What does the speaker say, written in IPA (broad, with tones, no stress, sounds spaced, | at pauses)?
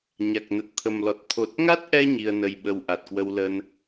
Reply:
ɲ a˨˩ k̚ n ə˨˩ t̚ t̪ʰ ə˨˩ m l ɔ˨˩ t̚ t̪ʰ o˨˩ t̚ ŋ a˦˥ t̚ ʔ ɛ˧ ɲ i˧ ə̯ n ə˧ j ɓ ə˧ w ʔ a˨˩ t̚ k w ə˧ w l ə˧ n